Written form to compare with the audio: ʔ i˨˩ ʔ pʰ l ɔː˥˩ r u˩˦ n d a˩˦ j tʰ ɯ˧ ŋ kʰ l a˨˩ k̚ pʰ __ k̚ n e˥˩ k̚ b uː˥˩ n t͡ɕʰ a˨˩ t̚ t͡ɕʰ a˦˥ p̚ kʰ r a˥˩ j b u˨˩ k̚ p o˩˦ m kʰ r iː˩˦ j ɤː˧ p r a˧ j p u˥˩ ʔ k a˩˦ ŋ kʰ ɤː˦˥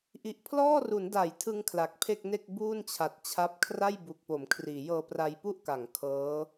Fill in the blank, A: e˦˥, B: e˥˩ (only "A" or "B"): B